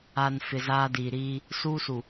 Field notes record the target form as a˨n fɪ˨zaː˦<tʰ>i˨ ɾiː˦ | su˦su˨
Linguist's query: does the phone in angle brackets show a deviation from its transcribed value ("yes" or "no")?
yes